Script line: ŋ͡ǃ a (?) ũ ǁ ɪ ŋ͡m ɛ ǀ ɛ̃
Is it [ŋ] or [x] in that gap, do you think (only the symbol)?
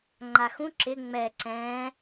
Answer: x